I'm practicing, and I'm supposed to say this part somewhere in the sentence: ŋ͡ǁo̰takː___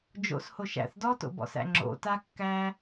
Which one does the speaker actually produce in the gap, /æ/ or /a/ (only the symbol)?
æ